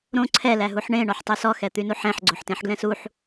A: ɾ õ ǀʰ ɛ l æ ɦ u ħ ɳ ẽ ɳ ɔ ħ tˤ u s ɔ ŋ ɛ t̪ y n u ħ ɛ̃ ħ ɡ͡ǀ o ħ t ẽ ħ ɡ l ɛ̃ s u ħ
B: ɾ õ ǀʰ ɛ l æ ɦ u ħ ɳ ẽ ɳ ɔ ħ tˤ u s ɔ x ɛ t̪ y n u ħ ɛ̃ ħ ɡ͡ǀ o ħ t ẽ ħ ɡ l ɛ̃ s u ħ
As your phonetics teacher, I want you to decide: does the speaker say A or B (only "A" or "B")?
B